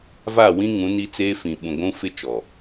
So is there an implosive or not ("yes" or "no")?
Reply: yes